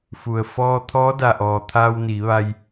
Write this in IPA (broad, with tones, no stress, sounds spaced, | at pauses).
f u˩ ə̯ f ɔː˧ t̪ʰ ɔː˧˥ d a˩ ʔ ɔː˩ t̪ʰ aː˧ w n iː˩˧ ʋ a˧ j